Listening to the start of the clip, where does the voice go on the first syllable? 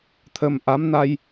low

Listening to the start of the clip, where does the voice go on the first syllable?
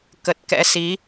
low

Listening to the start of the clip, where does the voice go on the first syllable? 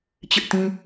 high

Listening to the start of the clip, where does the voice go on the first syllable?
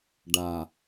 low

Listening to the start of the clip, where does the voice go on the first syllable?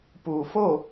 low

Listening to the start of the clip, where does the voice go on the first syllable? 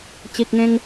low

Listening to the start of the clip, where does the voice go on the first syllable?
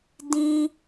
high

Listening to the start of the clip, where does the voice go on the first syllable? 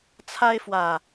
high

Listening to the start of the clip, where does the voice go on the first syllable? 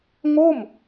falling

